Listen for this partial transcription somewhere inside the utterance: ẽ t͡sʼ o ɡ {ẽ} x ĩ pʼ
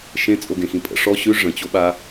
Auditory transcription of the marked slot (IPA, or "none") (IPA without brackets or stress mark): ẽ